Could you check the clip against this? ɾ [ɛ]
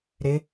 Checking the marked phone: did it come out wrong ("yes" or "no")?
yes